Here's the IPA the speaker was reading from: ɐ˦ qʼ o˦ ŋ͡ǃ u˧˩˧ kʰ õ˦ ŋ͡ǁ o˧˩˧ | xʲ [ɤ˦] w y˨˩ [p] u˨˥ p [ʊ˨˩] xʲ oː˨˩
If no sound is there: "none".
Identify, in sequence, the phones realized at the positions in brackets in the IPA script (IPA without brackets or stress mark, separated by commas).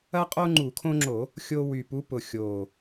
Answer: o˦, p, ʊ˨˩